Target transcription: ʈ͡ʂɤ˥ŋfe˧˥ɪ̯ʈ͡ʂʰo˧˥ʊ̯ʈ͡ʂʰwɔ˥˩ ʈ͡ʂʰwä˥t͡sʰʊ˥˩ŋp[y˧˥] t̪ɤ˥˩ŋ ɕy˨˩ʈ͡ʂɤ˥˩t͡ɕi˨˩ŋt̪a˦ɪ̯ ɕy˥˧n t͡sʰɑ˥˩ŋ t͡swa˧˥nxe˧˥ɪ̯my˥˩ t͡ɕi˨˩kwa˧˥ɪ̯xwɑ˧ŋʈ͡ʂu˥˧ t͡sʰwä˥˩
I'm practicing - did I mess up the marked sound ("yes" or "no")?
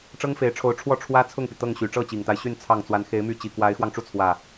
yes